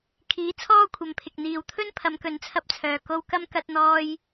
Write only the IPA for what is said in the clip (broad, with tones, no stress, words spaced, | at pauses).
kʰiː˨˥t͡sʰɔː˥kʷʰɐ˨˧mpʰɪ˨k̚ n̪iː˨wt̪ʰɵ˥n pʰɐ˨˧mkɵ˨˧nt͡sʰɐ˧p̚t͡sʰœː˨ ko˧w kɐ˥m kɐ˥t̚n̪ɔː˥j